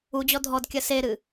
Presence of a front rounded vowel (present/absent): absent